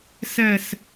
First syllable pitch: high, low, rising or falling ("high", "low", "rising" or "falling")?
falling